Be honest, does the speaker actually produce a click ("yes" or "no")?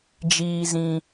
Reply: no